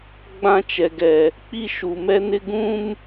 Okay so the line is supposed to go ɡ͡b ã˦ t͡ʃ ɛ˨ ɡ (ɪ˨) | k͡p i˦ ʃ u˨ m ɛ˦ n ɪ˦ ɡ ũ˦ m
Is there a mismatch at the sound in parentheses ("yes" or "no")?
yes